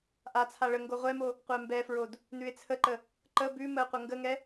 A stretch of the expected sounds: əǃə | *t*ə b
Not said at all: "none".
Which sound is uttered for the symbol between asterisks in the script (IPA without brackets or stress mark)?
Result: ǃ